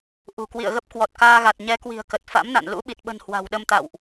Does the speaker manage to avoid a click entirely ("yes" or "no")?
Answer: yes